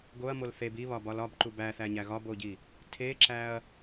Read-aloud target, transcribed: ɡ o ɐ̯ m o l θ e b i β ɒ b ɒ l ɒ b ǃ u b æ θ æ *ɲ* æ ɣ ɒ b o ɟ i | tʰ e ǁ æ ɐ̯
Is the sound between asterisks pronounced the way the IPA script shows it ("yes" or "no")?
yes